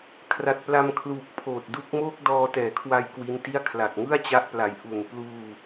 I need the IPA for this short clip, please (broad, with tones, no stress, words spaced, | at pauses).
kʰra˨˩t̚pla˧mkʰluː˨˩k̚ pʰoː˨˩t̚du˦˥k̚ moː˥˩k̚ dɔː˧tɛː˨˩kʰwa˧j kwi˦˥nti˥˩a̯ kʰla˨˩k̚ŋɯ˥˩a̯t͡ɕa˦˥ʔpla˨˩j ʔu˨˩npluː˧